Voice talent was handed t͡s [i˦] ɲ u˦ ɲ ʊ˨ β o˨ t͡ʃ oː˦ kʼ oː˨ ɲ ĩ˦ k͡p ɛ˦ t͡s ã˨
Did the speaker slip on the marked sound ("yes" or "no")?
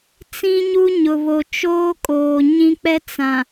yes